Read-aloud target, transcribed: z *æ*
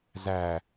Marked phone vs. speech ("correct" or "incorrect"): correct